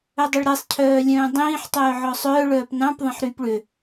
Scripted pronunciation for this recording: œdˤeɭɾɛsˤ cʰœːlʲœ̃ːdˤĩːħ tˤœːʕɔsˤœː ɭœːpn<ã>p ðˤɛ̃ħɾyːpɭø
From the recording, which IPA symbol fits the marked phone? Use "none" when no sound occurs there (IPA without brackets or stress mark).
ɑ̃